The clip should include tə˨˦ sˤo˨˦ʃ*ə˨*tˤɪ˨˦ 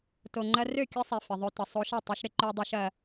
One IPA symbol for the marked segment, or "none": ɐ˨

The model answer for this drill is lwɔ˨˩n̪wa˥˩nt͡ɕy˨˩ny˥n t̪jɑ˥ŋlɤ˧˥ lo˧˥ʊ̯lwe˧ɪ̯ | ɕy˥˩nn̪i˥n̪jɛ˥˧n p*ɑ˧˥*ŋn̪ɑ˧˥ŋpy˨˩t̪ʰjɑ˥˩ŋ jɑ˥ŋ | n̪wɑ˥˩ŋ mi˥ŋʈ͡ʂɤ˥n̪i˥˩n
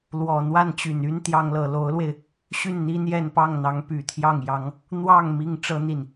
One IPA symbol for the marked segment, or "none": ɑ˥˩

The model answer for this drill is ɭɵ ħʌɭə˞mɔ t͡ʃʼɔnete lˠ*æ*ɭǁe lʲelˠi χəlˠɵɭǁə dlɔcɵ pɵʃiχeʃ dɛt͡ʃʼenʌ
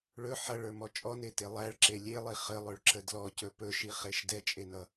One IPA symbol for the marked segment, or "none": æ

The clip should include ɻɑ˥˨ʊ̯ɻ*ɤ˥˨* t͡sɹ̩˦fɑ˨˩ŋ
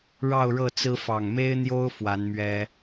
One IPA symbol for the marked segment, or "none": ɤ˥˨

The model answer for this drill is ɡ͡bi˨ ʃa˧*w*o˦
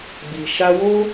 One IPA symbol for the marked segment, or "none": w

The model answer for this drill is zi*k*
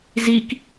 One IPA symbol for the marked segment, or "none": k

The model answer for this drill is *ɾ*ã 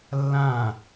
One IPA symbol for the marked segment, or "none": lː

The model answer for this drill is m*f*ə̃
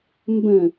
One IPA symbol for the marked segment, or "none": b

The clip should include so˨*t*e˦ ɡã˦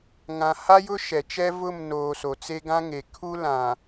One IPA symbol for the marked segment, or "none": t͡s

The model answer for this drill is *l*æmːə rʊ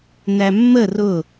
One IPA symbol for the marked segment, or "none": n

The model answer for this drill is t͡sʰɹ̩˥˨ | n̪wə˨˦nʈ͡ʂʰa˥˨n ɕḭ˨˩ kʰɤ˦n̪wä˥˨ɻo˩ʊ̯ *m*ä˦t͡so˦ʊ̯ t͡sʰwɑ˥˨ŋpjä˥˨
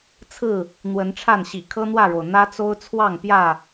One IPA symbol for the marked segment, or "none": n̪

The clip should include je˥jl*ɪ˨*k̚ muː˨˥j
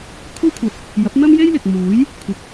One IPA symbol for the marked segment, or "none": ɪ˨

